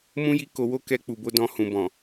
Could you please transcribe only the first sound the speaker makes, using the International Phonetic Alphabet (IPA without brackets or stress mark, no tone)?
m